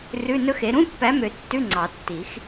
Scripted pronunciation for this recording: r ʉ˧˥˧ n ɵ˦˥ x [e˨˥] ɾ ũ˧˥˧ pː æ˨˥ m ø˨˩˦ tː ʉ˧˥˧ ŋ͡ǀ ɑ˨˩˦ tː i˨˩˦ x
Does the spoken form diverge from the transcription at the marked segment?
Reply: no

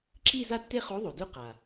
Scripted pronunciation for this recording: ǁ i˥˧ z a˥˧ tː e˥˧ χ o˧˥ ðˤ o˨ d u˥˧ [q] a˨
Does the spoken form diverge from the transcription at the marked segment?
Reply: no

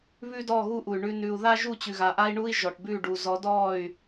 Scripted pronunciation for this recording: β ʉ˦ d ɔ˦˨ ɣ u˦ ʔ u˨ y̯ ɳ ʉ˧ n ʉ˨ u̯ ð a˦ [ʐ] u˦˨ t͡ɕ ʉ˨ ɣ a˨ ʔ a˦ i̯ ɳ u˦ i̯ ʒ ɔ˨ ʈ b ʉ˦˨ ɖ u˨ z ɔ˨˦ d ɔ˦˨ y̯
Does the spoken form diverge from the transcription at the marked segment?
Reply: yes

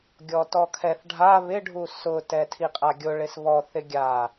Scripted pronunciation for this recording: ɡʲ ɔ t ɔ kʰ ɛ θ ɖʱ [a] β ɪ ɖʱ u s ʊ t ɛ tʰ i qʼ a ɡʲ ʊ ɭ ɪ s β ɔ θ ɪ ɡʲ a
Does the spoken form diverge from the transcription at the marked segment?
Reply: no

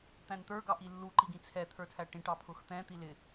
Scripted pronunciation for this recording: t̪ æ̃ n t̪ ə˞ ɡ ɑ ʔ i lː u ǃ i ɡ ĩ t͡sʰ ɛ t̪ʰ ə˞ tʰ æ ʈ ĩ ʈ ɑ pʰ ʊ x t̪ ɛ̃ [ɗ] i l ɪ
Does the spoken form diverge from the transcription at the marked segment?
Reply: yes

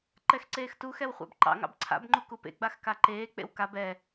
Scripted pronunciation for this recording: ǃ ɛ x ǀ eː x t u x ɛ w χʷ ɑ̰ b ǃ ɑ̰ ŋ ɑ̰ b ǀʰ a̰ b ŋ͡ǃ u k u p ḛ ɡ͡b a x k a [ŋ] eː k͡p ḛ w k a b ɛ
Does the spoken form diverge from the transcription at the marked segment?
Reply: yes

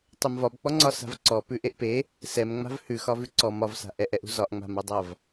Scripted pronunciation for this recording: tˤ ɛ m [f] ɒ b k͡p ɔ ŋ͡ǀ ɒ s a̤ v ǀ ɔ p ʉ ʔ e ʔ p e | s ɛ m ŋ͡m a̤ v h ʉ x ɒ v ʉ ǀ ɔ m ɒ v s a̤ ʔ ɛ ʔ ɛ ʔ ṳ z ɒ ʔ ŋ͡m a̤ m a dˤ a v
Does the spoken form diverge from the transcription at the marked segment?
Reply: yes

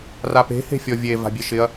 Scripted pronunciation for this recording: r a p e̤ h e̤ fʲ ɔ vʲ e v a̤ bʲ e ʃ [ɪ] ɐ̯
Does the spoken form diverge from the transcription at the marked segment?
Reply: no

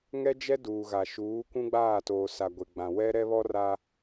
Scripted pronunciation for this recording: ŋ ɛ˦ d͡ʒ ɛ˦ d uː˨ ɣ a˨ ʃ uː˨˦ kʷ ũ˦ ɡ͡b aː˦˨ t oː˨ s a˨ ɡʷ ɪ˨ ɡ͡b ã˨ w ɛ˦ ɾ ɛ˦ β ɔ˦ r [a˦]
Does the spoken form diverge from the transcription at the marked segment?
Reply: no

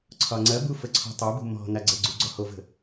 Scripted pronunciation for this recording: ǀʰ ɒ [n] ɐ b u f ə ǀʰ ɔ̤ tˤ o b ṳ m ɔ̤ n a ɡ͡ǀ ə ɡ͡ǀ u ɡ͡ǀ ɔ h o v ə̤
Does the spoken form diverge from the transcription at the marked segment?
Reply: yes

